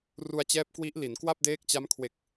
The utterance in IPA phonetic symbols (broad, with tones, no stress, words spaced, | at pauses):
ru˧a̯t͡ɕɛː˦˥p̚kwi˦˥ʔ li˩˦nkwa˥˩p̚deː˦˥k̚t͡ɕa˦˥m kʰwe˨˩k̚